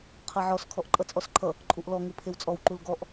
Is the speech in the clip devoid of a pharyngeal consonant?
no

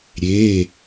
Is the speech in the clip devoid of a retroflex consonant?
yes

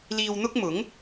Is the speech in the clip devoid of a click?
yes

